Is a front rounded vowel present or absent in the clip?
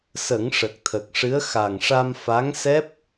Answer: absent